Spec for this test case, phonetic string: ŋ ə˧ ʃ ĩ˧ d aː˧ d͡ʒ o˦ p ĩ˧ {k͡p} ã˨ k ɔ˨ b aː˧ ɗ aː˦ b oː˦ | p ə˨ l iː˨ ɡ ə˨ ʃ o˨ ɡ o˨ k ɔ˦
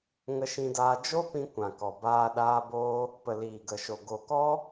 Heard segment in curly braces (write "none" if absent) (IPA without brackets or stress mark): kʷ